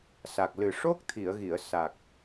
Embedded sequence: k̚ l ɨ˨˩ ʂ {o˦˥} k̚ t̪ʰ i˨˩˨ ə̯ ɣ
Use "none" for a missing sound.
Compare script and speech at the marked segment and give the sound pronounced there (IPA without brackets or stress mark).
o˦˥